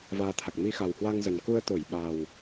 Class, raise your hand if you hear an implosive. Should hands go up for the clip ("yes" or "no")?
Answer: yes